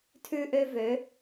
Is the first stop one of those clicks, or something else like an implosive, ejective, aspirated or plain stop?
aspirated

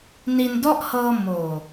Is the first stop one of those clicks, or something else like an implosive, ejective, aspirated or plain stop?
plain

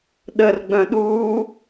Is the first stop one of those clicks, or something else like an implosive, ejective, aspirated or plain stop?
implosive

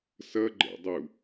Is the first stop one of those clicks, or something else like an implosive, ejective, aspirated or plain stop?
click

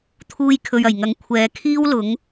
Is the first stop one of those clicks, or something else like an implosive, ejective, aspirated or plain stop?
aspirated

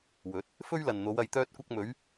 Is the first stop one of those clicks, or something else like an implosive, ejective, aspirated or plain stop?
plain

